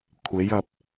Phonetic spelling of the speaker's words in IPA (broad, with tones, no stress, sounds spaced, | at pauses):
kʷʰ e˨˥ j ɐ˧ p̚